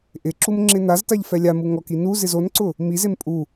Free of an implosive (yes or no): yes